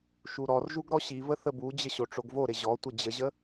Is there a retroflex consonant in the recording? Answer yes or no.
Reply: yes